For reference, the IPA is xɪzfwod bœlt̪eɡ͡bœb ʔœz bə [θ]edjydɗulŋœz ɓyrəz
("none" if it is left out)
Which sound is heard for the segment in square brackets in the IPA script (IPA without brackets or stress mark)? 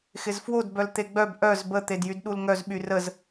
t̪